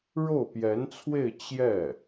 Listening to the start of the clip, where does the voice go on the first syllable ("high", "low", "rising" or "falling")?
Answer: falling